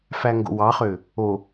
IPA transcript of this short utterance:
fæŋɡo̰wɑχø | o

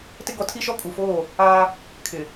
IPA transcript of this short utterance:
tɪ˦ɡɔ˨˦tʰi˦ʃɔ˦ kʼu˨ foː˦˨ | aː˦ | kʰɪ˨

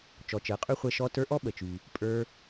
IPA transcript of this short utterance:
t͡ʃɔ˨t͡ʃəː˨qʼy˥χʷɛ˦ ʃɔ˦ tə˞˦ʔɔ˥ɓə˩t͡ʃy˩ | pʼə˞˦

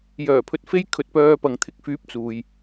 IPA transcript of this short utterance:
jœː˨˩pʰɵ˨t̚ fe˥jkʰɵ˧t̚pœː˧ pɐ˨ŋt̪ʰɪ˧k̚fyː˨˥p̚ t͡suː˨j

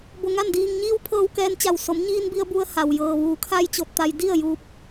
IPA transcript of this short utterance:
bo˧ŋa˥˨ndiː˧ŋ ɲiː˧˥wpʰɤː˧wkɛː˧nt͡ɕa˧˩w so˩˧mɲiː˧nbi˧ə̯ bu˧ə̯ha˩w jɤː˩ʋuː˩˧kʰa˧j t͡ɕo˧t̚t̪a˧j di˥˨ə̯ juː˧˥p̚

